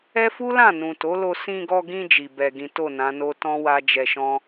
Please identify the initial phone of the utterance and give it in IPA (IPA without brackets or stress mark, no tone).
ɛ